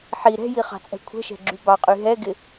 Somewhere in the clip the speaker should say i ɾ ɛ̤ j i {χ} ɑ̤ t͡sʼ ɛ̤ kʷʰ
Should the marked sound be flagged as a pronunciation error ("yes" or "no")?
no